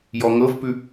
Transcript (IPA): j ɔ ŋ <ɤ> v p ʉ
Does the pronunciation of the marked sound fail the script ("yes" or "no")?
no